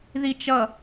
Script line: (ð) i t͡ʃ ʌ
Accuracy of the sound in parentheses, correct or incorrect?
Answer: correct